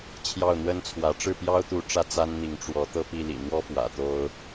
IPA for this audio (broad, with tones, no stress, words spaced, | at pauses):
t͡ɕʰjɑ˥˩ʊ̯n̪wə˥nt͡sʰwä˧˥ ʈ͡ʂɻ̩˥˩pjɑ˥ʊ̯t̪u˧˥ ʈ͡ʂä˥˩t͡sa˥nn̪i˧˥ŋ ʈ͡ʂwɔ˧˥t̪ɤ˥˧pi˥˩ lḭ˨˩n̪wɔ˥fwä̰˨˩ t̪o˥ʊ̯